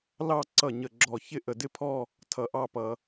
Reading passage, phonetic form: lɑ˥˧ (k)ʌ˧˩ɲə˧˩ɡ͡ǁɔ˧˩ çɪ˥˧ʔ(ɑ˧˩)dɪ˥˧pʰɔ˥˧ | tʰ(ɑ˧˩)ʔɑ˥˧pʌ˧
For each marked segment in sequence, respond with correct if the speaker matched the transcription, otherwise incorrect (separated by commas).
incorrect, incorrect, incorrect